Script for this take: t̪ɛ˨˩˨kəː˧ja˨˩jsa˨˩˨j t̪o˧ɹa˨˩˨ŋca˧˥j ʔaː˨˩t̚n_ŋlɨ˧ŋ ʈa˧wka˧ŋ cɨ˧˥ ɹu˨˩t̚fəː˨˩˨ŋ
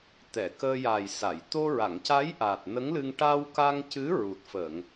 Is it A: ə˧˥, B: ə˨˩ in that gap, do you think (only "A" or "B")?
A